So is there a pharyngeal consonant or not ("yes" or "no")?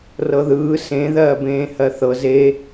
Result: no